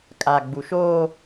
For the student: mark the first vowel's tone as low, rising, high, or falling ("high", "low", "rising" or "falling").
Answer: low